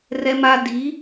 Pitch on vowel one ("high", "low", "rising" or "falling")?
high